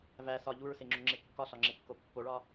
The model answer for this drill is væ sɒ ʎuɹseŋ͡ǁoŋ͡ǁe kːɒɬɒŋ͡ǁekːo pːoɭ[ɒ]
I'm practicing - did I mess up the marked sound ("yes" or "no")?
no